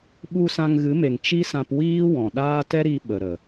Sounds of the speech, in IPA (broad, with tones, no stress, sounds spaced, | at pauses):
ɓ u˧ s ã˧ ŋ ɣ ɨ˨˦ m e˨ ŋ t͡ʃ i˦ s ã˧ p w iː˦ w ɔ̃˨ ɗ aː˦ t ɛ˦ ɾ i˧ ɓ ə˨ ɾ ə˨